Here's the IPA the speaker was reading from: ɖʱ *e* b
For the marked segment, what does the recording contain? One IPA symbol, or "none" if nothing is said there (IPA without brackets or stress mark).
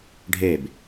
e